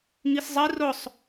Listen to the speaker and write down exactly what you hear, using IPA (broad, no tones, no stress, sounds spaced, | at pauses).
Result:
ŋ i s zˤ i r ʊ sˤ